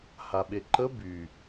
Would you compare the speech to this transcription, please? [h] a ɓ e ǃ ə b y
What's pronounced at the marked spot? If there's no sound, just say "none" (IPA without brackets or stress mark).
h